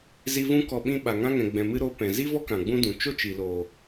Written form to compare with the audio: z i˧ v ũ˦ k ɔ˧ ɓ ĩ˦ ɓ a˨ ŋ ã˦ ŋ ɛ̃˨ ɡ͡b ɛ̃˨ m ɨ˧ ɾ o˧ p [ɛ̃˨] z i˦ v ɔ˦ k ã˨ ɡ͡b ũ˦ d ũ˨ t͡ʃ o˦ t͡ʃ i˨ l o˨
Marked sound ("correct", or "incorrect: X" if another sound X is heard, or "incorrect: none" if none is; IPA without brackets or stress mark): correct